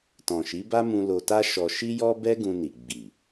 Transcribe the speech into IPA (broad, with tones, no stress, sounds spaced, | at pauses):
t ɔ̃˨ ʃ i˨˦ b a˦ m ũ˧ l o˧ t a˦ ʃ ɔ˧ ʃ i˦ j ɔ˦ b ɛ˦ ɡ ũ˧ n i˨ ɡ͡b i˨